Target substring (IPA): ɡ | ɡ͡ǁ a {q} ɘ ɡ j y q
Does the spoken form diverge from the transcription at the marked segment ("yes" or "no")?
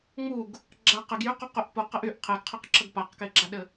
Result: no